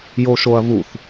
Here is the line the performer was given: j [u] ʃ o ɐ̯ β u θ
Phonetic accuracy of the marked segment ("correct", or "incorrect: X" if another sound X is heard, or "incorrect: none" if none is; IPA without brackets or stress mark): incorrect: o